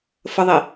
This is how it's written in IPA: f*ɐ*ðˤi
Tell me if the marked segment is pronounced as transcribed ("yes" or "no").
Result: no